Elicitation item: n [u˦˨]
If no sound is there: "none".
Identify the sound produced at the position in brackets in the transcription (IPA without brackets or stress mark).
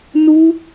u˦